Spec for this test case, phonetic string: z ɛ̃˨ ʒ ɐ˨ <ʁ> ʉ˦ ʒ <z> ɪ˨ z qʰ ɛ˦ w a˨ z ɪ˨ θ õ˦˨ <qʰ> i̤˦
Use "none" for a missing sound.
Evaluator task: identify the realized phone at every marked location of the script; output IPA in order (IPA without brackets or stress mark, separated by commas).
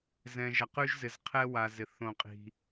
q, z, qʼ